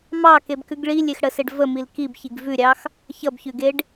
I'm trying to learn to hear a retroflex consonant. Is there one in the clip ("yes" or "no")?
yes